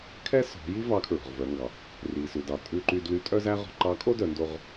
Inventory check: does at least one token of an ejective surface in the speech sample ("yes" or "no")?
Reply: yes